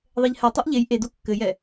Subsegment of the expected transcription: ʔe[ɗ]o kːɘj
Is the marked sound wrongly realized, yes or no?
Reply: yes